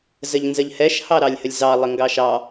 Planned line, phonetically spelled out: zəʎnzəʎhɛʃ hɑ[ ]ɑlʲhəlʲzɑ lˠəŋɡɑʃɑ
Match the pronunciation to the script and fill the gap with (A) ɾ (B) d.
A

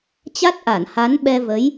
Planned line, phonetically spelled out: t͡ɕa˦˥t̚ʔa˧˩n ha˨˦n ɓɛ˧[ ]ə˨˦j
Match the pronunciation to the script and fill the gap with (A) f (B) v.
B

